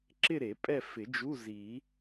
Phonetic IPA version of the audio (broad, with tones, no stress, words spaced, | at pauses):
ǁɪ˦˨ ɾe˨˩˦pʼɛ˦˨ fɪ˨˩˦d͡ʒu˧˥˧zi˨˩˦